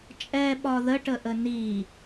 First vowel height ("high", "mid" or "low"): mid